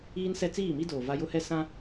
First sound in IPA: iː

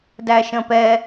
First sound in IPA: d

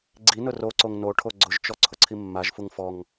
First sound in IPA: ɡ͡ǀ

